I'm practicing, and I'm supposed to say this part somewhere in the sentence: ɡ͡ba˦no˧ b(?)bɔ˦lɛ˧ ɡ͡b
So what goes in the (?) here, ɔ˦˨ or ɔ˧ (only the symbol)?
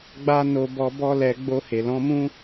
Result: ɔ˧